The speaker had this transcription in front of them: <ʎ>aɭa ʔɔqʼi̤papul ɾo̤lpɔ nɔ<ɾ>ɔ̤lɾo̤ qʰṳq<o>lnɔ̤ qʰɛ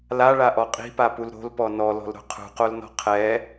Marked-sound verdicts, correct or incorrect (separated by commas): incorrect, incorrect, correct